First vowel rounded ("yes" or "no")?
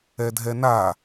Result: no